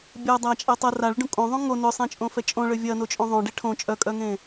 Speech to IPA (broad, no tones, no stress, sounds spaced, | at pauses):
bʲ ɐ dˤ a t͡ʃʼ ɛ tˤ ɐ r a ɭ ʏ ɖ ũ kʼ õ ðˤ ũ ŋ o n ʏ sˤ ẽ t͡ʃʼ õ f ɛ t͡ʃʼ õ ɭ ʏ vʲ ɐ n o t͡ʃʼ õ ðˤ õ ɖ e ʈʰ õ t͡ʃʼ œ kʼ œ ŋ ẽ